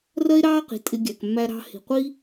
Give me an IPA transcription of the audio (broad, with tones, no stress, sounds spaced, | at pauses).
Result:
r ɜ˦ e̯ ɾ ɑː˦ q i̤˨ tʼ ɪ˧ ɡʲ æ˨ k mː æ˦ ɾ ɑ̤˦ h i̤˨ qʷ i˦